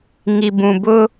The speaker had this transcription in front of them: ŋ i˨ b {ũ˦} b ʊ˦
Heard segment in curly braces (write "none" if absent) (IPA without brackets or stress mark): ũ˨